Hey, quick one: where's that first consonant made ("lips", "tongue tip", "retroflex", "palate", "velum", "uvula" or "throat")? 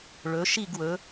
retroflex